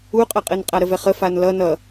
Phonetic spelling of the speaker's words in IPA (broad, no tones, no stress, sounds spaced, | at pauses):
u qʼ ʌ qʼ ɘ n qʼ a ɾ ə v ɛ χ ə f a n l ʌ n ʌ